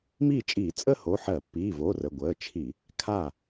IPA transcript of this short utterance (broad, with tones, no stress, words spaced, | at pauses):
miː˥˩t͡ʃʼiː˧˩˧ t͡sʼəː˥˧ho˩˧˩ ħɜ˧˩˧pːiː˩˧˩vo˩˧˩ rə˩˧˩ ɡʷəː˩˧˩t͡ʃʰi˧˩˧ | kʰa˥˩